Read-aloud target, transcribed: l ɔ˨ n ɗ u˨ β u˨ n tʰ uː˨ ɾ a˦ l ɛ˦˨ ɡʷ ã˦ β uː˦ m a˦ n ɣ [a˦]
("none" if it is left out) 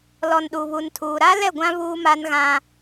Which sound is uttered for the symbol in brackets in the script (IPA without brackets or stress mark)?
ã˦